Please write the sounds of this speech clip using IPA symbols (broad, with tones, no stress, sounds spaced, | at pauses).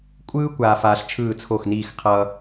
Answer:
kʷʼ ɯː˥ kʷ aː˧ f aː˧ ɬ t͡ʃʰ ɯː˥˩ t͡sʰ o˥˩ x n iː˥˩ x qʰ ʌː˧